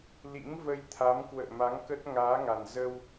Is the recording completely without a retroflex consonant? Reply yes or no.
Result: yes